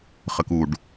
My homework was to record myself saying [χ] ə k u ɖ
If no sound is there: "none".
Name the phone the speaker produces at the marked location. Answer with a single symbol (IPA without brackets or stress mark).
χ